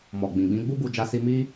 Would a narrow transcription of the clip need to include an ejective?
no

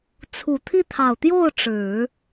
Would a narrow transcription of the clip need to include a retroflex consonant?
yes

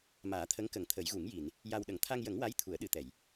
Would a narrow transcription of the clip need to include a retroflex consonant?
no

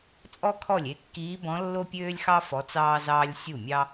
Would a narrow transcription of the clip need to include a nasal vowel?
yes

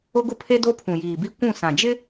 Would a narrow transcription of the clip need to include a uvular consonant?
no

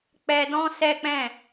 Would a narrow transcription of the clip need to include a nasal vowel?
yes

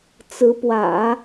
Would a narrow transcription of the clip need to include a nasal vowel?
no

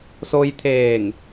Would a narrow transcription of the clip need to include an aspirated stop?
yes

